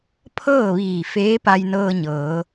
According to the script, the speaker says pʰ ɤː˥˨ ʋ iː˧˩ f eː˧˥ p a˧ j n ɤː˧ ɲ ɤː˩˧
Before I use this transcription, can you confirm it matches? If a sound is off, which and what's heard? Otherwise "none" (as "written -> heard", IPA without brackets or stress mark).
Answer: none